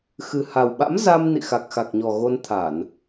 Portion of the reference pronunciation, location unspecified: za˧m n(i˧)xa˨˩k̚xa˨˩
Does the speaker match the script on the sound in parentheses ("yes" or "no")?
no